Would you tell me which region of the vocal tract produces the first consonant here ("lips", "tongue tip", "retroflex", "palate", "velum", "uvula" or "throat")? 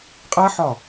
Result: uvula